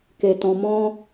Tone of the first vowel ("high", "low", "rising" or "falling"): low